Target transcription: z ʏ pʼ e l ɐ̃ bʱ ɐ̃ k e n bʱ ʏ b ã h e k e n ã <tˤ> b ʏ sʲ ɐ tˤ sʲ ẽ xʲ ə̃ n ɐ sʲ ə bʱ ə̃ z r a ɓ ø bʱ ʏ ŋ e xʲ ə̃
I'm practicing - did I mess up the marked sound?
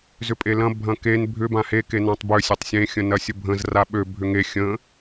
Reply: no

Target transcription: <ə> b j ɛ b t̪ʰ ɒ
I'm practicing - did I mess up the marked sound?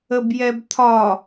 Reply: no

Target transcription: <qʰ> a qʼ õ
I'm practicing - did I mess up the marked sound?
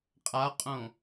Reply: yes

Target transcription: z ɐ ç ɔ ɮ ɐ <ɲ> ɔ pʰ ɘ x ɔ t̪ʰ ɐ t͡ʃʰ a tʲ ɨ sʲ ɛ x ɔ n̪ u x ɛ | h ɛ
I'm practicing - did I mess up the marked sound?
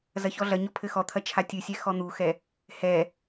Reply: no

